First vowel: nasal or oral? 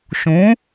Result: nasal